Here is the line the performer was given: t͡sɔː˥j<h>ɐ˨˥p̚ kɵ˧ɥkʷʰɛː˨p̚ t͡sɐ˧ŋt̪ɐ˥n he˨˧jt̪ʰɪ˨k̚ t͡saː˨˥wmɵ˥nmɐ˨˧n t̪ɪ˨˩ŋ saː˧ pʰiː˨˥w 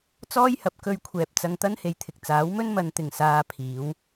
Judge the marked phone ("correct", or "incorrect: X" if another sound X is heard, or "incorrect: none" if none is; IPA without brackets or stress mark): correct